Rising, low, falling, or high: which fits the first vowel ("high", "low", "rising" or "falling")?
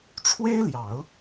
high